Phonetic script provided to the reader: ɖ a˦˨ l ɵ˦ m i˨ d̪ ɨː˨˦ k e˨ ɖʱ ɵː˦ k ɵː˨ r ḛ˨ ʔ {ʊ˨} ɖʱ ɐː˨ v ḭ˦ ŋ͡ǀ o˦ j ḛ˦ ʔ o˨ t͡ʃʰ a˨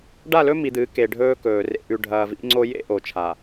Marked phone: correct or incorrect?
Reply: incorrect